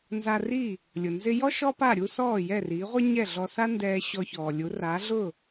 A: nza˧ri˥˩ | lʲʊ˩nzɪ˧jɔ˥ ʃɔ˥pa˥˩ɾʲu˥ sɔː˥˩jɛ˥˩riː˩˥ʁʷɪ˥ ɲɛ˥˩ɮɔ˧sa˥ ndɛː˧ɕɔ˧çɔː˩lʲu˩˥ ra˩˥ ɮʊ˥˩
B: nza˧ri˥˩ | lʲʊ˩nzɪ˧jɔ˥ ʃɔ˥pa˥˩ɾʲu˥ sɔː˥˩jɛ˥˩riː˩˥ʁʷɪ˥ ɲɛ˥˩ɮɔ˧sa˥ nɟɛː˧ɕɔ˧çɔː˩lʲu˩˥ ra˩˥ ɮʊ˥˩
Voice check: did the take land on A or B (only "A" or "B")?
A